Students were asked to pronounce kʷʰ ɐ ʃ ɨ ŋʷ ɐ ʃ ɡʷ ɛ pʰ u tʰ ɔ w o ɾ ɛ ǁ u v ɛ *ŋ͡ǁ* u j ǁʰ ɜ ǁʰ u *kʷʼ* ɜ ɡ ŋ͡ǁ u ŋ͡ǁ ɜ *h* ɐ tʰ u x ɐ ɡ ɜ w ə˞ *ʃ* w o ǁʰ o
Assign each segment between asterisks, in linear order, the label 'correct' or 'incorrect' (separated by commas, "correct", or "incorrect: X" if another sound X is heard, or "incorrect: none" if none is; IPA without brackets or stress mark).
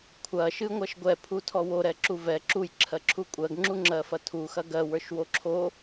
incorrect: ǁ, correct, incorrect: f, correct